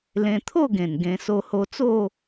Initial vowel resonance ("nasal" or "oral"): nasal